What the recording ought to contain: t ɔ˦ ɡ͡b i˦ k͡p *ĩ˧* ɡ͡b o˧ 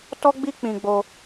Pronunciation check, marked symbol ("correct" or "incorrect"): correct